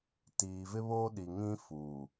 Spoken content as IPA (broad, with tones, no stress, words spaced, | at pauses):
tiː˨vɪ˦βoː˦ɗi˨ ŋĩ˦fuː˨